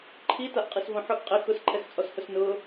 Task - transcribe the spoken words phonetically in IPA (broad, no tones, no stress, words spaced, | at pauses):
ǃʰi taʔqʼisvõħʊʔ qʼɪ xʊs ǃʰɛxt͡sʼɔshʊsnʊː